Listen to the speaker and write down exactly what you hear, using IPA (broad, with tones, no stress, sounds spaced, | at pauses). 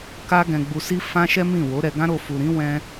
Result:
k a˦ ɡ ɛ̃˧ ɡ͡b u˧ s i˦ f ã˦ ʃ ɛ˦ m ĩ˦˨ w o˨˦ ɾ ɛ˧ ɡ ã˦ ɾ o˧ f u˨ ɾ ĩ˨˦ w ɛ̃˦